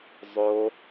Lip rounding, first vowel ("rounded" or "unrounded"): rounded